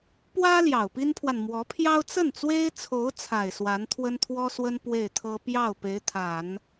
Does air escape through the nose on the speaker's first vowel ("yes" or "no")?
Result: no